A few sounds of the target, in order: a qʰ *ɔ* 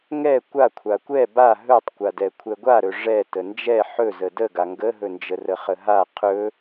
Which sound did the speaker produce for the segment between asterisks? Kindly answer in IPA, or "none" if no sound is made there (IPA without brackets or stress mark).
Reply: ɵ